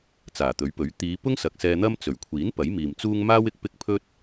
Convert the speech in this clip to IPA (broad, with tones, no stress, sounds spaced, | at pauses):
t͡s aː˨˩ t̪ ɵ˨˥ ɥ p ɵ˨˥ ɥ t̪ iː˨˧ p ʊ˥ ŋ s ɐ˨ k̚ s ɛː˧ n̪ ɐ˥ m t͡s ɵ˨˩ ɥ kʷʰ iː˨˥ n p ɐ˨˥ j m iː˨ m t͡s uː˥ ŋ m aː˥ w ɪ˨ k̚ p ɪ˥ k̚ pʰ ɵ˥ t̚